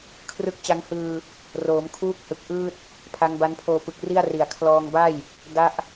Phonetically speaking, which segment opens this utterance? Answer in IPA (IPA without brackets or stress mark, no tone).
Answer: kʰ